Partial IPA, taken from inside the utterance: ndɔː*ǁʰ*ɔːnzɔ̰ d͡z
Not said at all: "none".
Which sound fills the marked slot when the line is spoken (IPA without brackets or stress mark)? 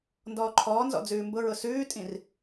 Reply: ǃʰ